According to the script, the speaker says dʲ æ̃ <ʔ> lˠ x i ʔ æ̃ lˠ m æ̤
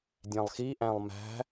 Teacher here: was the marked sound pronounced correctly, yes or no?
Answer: no